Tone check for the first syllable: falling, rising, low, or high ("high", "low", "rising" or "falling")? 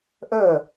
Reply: falling